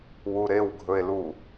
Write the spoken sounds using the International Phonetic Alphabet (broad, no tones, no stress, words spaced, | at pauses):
wuɾewɡʱɵe̯lu